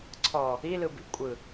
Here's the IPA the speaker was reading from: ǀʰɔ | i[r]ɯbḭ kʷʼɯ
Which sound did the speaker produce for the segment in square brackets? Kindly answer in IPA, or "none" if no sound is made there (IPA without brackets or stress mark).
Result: l